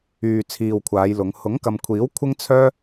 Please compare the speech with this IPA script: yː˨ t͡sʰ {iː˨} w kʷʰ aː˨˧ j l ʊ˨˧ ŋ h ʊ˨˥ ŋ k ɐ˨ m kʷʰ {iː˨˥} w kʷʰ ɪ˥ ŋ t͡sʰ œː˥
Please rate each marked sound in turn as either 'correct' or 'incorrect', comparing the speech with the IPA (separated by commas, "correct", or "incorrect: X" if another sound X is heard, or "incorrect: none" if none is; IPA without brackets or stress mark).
correct, correct